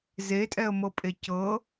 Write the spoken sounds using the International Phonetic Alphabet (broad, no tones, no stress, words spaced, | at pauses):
zetʼɛə̯mɤpʼe cɤ